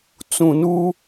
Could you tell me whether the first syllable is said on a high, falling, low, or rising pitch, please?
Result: low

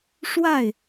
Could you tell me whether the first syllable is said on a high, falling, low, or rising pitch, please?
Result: falling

